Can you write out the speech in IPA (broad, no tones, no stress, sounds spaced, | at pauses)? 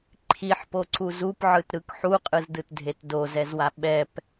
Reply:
ǃʰ i ħ p o ǀ u z u p ʕ ɯ t ɾ ɯ k ħ u qʼ ɯ z d ɯ t dʱ e t d o z ɛ z w a ɓ ɛ p